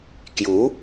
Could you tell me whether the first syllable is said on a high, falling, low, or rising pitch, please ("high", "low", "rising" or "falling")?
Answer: rising